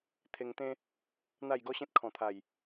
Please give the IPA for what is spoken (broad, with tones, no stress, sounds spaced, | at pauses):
t̪ʰ e˧ ŋ t̪ ẽ˦ | n̪ a˥˧ j ɡ ɔ˦ ɕ ẽ˦ t̚ kʰ ɔ̃˨˩ t̪ʰ a˨˩ j